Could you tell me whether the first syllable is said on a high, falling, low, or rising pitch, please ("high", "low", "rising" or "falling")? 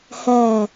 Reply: low